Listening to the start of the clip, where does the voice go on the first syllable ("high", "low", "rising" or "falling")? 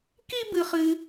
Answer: high